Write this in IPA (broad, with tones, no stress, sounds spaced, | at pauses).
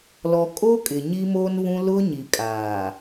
l ɔ˨ kʼ o˦ kʼ ɪ˨ ɲ i˦ m oː˦ n β ũ˦ l ʊ˦ ɲ i˨ kʼ aː˨